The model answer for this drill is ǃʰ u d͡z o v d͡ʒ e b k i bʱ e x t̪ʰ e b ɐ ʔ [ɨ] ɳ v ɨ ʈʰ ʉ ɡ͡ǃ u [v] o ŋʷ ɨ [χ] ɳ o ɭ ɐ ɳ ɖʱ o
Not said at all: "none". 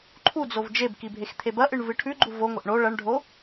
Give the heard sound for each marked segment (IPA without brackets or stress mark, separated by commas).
ɨ, v, ʔ